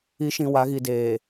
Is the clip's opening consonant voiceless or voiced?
voiceless